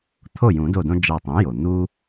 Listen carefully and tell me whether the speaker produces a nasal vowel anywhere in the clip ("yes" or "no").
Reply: yes